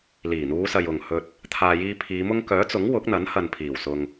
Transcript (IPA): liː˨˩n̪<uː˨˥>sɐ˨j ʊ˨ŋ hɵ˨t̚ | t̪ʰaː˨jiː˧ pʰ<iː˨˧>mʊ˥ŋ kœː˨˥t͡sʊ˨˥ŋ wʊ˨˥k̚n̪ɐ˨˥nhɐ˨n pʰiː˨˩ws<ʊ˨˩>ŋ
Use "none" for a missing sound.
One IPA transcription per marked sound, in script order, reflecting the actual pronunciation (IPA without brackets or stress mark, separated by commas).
uː˨˧, iː˨˧, ʊ˨